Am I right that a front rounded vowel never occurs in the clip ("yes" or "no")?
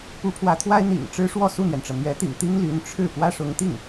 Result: no